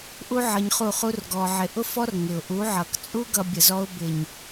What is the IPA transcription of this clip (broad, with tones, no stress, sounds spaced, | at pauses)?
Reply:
ʔ u˦ ʕ ʌ˧ ɲ χ u˦˨ χ u˦ r ɡ ɔ˧ ʕ ɪ˧ ʔ ʊ˦ f ɔ˦ r ŋ ɪ˨ ʊ̯ ʔ u˨˦ ʕ ʌ˨ k t͡sʼ u˦ ɡ ʌ˧ bʲ ə˨ z ɔ˧ ʊ̯ b ɪ˨ ɲ